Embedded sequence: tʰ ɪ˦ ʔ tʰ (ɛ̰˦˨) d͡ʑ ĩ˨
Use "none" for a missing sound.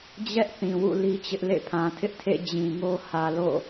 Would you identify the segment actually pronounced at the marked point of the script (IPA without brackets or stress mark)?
ḛ˦˨